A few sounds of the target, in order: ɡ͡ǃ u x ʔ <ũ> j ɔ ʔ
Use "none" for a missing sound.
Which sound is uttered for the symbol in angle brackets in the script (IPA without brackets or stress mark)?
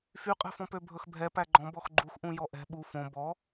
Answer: ũ